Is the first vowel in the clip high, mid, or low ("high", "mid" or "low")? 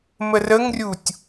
mid